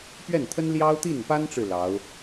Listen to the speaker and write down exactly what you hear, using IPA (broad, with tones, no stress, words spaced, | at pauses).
pɥɛ˥˩nt̪ʰə˥n ljɑ˥ʊ̯t̪i˥˩npa˥nʈ͡ʂɻ̩˨ lɑ˧˥ʊ̯